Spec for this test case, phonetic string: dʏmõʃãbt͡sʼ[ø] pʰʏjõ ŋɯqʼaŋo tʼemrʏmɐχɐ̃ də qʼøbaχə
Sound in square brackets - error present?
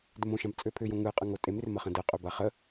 no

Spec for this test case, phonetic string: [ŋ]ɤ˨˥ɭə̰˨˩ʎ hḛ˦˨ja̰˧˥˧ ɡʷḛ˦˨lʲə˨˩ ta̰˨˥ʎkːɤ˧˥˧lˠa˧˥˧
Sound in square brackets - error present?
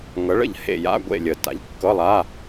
no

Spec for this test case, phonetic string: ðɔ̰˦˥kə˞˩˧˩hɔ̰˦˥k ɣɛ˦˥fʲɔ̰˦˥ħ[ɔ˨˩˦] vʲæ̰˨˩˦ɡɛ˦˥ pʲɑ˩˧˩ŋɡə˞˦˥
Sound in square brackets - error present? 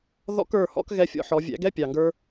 no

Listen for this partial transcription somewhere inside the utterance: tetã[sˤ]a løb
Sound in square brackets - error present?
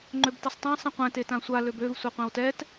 yes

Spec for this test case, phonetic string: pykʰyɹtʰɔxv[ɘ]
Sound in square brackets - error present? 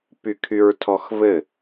no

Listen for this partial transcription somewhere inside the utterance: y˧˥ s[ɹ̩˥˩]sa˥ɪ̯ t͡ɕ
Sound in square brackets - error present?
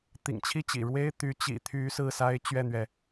yes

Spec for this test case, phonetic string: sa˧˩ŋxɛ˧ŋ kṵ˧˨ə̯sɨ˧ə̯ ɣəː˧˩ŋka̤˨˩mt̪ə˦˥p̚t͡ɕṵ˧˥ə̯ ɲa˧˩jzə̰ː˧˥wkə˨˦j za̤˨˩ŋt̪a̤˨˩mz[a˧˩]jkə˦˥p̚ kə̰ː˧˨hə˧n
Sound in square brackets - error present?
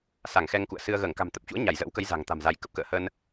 yes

